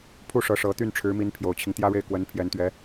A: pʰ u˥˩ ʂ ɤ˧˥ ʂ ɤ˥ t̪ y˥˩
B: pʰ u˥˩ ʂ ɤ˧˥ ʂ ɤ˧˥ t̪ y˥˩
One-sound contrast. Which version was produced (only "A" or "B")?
B